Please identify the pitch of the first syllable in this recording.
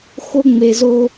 high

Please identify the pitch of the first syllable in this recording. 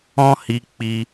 high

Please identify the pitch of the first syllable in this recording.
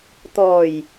low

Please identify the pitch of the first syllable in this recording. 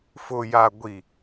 low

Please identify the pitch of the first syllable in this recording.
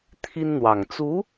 high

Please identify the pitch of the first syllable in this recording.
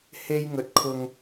high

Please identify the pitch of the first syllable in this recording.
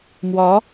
rising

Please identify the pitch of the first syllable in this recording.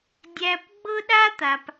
high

